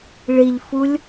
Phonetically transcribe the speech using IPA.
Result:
ɭiʎfulʲ

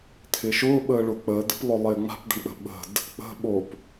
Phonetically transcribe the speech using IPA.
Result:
t̪ʰɪʃʊː ɓəːɭʊ k͡pəːd̪ɪplˠʊ lˠɪːŋ͡ma̤pd̪ə̤ɳk͡pə̤ ɓə̤d | k͡pə̤ɓop

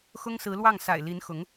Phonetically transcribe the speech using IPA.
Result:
xʊ˥ŋsɹ̩˧˥lwɑ˥˩ŋ sa̰˨˩ɪ̯li˧˥n xʊ˧˥ŋ

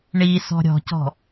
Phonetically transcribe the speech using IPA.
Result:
ɳisɔ̤ ɾʲɔ̤cɔ̤

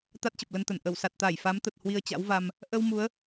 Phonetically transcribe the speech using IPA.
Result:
t̪a˦˥t̚t͡ɕə˨˩p̚lə˧nt̪ə˧˩n ʔə˧˩wsa˨˩t̚t̪aː˧˩j fa˨˦mt̪ə˨˩t̚ hwi˧ə̯t͡ɕa̰˧˥wva˧m | ʔə˧w mu˨˦ə̯

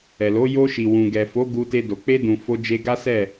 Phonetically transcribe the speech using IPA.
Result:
ɛ˨lo˨˦ jo˧ʃi˨wũ˨ ɡɛ˨fo˨˦ ɡu˧te˧do˨ k͡pe˧dũ˨ fo˧d͡ʒe˧ɡa˦sɛ˦˨

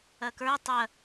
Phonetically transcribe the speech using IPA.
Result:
ɜkə˞ tˤɜ

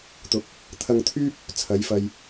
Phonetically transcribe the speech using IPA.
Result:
t̪ʊ˨˥k̚ | t̪ʰɐ˧ŋt̪ʰyː˥p̚ | t͡sʰɐ˨˧jfɐ˧j

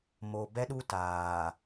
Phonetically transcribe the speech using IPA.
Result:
mo˨bɛ˦ɗu˦taː˨

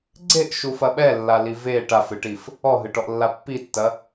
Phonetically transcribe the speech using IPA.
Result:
ɡ͡ǀeʔʃufɐ ɓɛlːali ve ʈafɨʈif | ɔɦɨʈɔʔlːa pːitːɐ

